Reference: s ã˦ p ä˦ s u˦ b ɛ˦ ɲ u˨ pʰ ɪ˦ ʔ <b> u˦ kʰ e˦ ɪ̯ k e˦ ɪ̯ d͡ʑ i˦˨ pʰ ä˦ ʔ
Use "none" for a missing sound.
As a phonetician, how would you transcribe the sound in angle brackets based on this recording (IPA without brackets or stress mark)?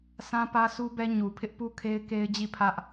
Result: p